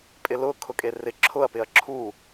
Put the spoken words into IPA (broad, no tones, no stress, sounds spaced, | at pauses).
pʼ ɪ l ʊ kʰ ʊ kʼ e r ɪ ǁʰ ʊ ɐ̯ p ɪ ɐ̯ ǁʰ u